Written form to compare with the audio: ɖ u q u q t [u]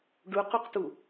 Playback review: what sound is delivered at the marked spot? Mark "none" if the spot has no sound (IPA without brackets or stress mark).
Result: u